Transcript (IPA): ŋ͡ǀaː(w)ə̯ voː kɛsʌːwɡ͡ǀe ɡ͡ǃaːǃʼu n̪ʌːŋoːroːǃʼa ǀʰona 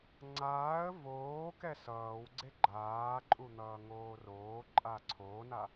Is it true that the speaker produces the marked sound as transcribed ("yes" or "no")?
no